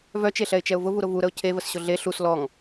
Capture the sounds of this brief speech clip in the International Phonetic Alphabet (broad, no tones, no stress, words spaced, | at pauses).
vœt͡ʃeɬɛɪ̯t͡ʃɛʊ̯ vʊvuɾʊ vuɾəʊ̯ cʰevəsɕʊ ɮe ɬus lɔŋ